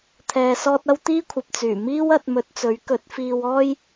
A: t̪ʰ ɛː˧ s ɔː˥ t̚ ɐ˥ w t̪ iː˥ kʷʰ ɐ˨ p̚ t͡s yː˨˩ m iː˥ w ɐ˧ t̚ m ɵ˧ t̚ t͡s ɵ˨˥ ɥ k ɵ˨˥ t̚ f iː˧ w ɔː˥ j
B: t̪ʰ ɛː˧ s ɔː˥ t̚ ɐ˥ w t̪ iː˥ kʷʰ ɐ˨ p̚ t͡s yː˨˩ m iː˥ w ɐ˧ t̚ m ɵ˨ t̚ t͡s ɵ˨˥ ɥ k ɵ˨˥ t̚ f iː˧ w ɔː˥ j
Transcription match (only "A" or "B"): A